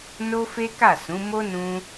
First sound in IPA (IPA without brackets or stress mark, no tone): n